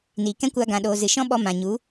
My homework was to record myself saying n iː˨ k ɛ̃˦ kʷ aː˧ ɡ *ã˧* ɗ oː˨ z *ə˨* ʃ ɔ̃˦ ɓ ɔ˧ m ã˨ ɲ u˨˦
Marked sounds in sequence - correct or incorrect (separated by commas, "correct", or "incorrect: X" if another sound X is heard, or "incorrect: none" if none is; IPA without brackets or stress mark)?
incorrect: ã˨, incorrect: ɨ˨